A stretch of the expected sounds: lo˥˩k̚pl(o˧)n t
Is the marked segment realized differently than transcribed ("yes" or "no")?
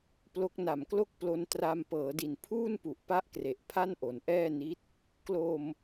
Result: no